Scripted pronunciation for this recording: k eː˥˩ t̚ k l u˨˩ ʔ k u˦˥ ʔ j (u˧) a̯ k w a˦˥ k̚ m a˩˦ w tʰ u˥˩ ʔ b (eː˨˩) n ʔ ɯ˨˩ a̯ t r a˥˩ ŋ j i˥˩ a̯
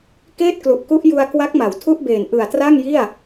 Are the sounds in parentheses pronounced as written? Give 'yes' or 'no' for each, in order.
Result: yes, yes

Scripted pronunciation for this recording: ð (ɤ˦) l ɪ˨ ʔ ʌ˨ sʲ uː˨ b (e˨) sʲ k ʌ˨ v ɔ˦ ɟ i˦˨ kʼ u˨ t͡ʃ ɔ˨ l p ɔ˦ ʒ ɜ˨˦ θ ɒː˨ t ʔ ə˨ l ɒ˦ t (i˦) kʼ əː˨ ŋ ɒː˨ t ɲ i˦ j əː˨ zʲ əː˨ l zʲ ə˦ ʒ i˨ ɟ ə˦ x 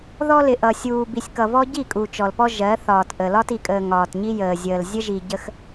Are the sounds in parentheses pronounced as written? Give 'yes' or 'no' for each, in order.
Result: no, no, no

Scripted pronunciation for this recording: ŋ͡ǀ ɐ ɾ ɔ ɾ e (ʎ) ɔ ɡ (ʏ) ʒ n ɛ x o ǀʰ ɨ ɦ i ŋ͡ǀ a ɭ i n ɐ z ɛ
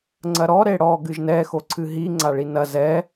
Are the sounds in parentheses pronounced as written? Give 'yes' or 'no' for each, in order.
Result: no, no

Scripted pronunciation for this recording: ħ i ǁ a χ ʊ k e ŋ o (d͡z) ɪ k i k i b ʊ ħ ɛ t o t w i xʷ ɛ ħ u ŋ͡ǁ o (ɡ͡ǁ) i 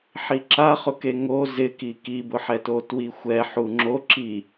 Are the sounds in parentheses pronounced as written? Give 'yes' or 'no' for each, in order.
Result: no, no

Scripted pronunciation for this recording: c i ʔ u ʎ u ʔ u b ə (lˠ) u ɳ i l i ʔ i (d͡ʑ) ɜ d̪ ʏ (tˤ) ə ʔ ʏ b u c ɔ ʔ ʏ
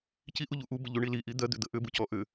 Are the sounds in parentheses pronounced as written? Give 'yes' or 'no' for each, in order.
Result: no, no, no

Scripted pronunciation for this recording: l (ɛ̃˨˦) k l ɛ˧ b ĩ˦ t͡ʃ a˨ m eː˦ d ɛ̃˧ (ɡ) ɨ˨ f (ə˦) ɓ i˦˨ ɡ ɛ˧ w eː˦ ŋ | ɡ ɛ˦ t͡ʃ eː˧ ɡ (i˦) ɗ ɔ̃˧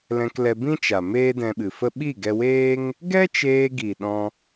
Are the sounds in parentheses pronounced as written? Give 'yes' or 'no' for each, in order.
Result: no, no, yes, no

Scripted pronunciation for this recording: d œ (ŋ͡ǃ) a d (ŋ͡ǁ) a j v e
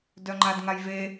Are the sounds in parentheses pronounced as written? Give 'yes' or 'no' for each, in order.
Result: yes, no

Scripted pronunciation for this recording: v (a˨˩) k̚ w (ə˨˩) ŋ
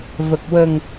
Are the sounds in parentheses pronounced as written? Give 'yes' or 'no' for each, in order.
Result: no, yes

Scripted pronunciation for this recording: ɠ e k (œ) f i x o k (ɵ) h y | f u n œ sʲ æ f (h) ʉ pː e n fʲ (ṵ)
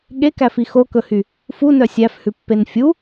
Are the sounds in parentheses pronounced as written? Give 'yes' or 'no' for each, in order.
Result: no, yes, yes, no

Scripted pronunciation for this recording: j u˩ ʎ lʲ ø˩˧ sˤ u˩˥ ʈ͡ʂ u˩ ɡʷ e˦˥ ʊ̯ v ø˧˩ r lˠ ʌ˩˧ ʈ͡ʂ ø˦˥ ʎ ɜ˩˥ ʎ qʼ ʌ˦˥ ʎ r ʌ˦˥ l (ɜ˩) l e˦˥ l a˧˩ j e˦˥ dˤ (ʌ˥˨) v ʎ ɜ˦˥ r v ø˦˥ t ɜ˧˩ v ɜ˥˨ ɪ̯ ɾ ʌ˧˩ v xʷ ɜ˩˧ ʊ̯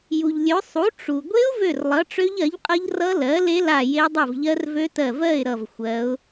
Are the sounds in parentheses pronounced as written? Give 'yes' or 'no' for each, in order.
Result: no, yes

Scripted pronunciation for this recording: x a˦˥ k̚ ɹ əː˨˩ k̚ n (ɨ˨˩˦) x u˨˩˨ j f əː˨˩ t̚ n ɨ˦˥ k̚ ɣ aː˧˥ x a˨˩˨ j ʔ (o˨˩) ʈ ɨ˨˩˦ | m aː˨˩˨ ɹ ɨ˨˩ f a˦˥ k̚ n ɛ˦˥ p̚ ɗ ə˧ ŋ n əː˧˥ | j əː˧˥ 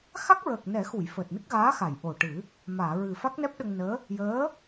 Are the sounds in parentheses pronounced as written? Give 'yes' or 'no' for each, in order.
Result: no, yes

